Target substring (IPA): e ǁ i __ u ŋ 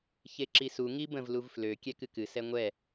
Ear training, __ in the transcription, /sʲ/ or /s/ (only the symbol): s